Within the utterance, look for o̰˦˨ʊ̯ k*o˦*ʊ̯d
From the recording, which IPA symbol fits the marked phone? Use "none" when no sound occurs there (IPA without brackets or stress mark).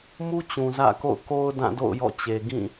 o˦